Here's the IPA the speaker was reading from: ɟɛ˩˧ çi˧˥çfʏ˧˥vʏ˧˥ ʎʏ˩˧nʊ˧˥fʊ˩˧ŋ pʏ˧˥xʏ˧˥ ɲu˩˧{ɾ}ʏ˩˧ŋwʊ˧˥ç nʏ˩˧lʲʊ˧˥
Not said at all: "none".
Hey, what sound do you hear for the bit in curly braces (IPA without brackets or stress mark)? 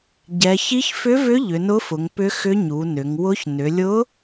n